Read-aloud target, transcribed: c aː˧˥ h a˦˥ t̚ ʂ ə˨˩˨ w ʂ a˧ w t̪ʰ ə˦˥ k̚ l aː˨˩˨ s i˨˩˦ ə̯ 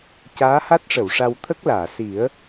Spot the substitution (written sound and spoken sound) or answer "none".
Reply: none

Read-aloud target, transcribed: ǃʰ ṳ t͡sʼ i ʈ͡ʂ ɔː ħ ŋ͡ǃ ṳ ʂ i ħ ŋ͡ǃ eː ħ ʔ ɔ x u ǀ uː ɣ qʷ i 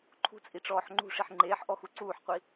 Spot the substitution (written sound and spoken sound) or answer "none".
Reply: ɣ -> ħ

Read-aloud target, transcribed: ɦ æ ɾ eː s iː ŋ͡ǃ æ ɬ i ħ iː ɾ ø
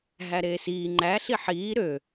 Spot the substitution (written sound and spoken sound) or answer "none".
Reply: none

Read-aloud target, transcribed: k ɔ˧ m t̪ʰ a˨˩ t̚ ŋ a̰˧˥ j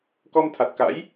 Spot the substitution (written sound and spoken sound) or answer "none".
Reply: ŋ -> k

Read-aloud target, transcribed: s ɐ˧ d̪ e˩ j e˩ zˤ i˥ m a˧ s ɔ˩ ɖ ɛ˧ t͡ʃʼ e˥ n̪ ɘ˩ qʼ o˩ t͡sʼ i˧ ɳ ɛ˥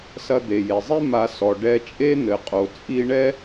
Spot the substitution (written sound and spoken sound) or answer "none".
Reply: none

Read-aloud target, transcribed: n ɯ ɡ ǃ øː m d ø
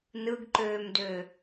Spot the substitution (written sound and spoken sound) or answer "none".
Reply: none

